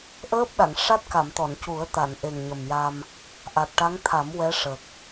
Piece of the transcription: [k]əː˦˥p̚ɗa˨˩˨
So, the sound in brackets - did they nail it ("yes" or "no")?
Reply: no